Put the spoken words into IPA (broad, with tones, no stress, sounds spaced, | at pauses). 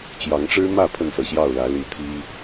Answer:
t͡ɕ j ɑ˨˦ ŋ ʈ͡ʂ ɻ̩˦ m ä˥˨ pʰ ə˥˨ n s ɤ˩ ɕ j ɑ˥˨ ʊ̯ l ä˨˦ l i˨˦ t̪ʰ i˦